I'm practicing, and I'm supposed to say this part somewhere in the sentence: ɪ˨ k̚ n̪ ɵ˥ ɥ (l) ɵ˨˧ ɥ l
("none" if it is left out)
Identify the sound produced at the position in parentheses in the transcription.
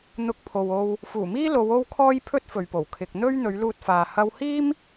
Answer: n̪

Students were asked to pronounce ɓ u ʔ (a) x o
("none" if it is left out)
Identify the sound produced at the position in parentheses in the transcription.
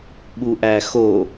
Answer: æ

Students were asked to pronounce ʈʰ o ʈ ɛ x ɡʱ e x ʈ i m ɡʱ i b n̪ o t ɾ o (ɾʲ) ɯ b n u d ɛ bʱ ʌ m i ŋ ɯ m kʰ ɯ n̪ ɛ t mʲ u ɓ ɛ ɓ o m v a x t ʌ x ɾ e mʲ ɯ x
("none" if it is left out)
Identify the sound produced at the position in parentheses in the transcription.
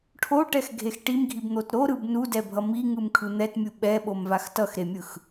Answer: ɾ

